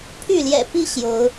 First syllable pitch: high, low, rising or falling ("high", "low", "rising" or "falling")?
falling